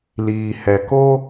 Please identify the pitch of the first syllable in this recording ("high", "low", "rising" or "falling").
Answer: low